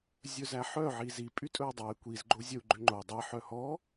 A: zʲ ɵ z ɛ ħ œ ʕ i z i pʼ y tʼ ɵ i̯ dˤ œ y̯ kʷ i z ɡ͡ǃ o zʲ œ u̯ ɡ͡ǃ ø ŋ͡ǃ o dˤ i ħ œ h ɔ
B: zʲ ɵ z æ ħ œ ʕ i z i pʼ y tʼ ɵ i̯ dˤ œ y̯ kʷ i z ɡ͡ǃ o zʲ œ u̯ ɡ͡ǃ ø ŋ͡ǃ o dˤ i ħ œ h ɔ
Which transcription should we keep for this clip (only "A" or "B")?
B